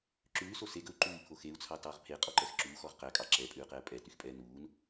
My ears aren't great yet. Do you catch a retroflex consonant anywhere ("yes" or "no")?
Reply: no